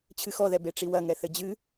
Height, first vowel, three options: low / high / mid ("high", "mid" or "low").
high